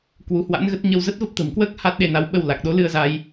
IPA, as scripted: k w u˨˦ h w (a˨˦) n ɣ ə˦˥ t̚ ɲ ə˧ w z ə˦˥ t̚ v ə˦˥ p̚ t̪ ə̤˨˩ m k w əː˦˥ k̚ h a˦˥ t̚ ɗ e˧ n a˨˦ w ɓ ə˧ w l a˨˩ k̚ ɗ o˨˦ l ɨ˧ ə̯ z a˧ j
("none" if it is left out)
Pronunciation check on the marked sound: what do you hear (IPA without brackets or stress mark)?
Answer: a̰˧˥